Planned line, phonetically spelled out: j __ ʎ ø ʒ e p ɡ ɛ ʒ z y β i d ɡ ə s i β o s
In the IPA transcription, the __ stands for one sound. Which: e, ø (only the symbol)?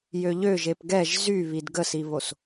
ø